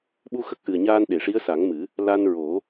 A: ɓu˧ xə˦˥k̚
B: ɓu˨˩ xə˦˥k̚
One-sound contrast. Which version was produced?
A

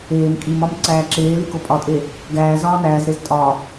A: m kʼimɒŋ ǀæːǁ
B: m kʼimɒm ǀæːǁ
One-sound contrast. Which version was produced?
B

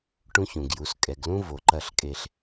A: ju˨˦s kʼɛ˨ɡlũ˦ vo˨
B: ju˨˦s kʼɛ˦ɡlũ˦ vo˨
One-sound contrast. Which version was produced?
A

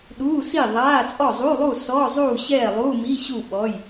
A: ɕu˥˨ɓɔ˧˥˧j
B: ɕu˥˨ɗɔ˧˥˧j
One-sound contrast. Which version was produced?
A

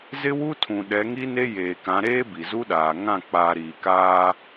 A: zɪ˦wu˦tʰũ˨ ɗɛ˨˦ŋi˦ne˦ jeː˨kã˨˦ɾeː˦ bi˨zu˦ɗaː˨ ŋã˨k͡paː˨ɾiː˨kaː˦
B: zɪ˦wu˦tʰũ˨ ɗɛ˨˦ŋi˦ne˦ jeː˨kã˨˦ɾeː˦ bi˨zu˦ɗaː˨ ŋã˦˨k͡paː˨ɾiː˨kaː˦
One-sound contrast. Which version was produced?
B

